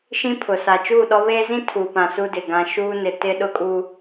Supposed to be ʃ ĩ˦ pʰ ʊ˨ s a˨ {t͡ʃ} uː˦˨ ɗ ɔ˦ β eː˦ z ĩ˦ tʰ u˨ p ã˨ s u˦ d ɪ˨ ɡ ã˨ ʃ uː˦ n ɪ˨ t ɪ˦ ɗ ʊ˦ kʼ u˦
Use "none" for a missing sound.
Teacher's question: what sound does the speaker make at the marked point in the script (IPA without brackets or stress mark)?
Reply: t͡ʃ